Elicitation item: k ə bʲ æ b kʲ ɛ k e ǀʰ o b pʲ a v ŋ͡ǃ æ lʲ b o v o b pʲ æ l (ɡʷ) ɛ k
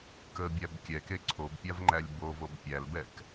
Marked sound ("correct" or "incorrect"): incorrect